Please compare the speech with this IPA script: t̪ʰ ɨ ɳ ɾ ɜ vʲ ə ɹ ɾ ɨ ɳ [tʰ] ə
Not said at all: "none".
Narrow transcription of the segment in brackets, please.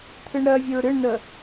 n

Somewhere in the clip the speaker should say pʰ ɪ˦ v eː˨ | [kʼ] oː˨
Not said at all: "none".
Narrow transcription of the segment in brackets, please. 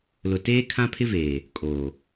kʼ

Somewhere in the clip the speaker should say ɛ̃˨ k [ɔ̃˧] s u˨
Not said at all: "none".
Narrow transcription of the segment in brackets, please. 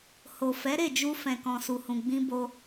ɔ̃˨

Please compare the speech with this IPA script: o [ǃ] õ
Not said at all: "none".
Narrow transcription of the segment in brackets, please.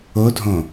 dʱ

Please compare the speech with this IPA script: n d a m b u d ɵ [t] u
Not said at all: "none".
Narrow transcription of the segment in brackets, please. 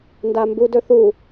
θ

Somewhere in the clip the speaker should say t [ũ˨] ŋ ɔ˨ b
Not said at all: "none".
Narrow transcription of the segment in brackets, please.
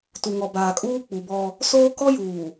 u˨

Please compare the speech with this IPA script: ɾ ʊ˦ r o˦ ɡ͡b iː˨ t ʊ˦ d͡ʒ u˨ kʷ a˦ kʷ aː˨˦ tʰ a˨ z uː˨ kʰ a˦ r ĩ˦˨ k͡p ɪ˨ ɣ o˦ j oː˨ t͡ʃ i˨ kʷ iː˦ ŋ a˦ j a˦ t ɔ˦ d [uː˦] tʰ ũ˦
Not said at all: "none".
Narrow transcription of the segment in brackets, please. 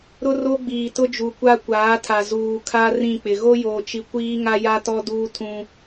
uː˦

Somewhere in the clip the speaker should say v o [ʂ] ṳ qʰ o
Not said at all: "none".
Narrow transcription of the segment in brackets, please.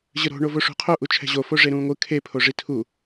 ʂ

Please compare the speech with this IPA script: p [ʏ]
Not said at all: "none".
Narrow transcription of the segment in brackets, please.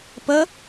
ə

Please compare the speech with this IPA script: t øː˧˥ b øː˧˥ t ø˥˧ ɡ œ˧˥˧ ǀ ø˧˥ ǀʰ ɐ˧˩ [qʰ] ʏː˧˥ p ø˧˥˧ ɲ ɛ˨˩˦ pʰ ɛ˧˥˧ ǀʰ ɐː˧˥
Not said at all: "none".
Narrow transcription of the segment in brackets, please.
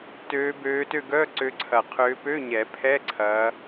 qʰ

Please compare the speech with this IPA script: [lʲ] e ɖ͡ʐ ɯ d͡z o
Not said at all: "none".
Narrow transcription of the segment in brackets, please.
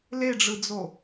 l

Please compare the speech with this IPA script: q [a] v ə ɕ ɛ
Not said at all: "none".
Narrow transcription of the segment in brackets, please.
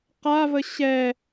a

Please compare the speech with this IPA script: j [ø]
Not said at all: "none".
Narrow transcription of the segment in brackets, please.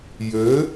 ø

